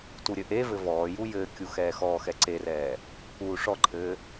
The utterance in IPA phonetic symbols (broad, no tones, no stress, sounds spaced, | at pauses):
t u ɾʲ ɘ ʔ e v ɘ v ɔː j u j ɘː kʲ u x ɛː x ɔː x ɛ ǀ e r ɛː | uː ʂ ɔ ǃʰ ɘː